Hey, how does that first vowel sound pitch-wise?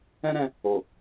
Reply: high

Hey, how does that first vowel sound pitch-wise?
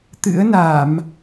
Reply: rising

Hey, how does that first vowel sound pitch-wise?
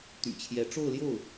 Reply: low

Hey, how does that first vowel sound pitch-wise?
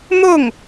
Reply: falling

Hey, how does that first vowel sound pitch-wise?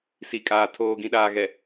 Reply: low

